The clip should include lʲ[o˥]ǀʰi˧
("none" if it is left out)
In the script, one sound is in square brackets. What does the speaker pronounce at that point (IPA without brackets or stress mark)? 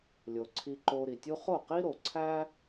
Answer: o˩